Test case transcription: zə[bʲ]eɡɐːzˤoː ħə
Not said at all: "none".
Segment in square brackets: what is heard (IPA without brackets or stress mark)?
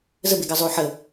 b